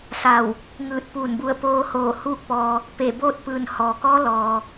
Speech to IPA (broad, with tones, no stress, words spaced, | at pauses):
sa˧˩w | ŋɯː˧˩t̚puː˧˩nbu˧˩ə̯ poː˧hoː˧˩ huː˥˨k̚pɔː˧ | pe˧˩boː˥˨t̚pɯː˧˩n hɔː˩kɔː˧˥ lɔː˩